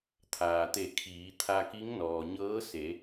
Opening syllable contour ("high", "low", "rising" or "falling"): low